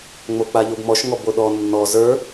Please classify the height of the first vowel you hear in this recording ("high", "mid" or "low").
mid